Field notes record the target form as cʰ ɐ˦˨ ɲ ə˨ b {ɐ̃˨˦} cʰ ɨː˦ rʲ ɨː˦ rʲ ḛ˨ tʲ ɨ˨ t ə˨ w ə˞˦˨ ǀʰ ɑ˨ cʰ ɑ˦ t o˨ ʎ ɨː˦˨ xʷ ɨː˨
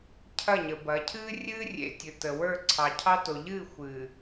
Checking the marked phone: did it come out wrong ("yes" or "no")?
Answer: yes